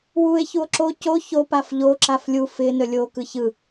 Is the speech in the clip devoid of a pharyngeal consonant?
yes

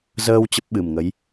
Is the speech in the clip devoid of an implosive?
no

